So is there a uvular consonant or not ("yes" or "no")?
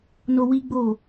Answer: no